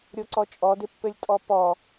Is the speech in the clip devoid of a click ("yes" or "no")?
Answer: no